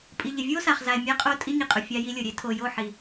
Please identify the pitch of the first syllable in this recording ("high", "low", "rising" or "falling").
low